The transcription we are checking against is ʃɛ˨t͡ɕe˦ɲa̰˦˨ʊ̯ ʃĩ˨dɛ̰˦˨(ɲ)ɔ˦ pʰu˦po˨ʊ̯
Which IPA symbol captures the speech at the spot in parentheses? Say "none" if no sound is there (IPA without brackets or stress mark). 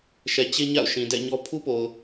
ɲ